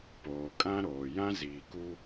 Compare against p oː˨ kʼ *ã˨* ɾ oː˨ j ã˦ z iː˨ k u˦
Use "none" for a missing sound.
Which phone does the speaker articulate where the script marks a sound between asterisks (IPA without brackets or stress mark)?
ã˦